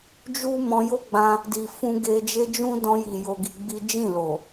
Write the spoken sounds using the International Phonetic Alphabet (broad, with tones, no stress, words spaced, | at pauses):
d͡ʒu˦ mɔ̃˧jo˦ɡ͡bã˧ | di˨fũ˧ ɡe˧d͡ʒe˦d͡ʒũ˦ dɔ̃˧ji˨ jo˧ɡi˧ɡ͡bi˦ d͡ʒĩ˦˨lo˨